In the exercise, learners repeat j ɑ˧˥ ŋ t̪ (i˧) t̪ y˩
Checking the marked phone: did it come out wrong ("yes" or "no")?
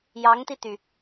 no